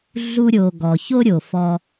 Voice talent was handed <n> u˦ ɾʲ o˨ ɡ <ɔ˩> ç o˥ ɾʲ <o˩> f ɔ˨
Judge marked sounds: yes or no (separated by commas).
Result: no, yes, yes